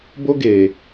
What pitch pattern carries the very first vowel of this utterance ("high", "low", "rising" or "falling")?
high